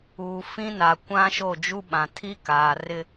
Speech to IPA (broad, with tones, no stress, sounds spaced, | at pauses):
uː˨ f ĩ˦ n a˨ kʷ ã˦ ʃ o˦˨ d͡ʒ u˦ ɓ ã˨ tʰ i˦ k aː˨ r ɪ˦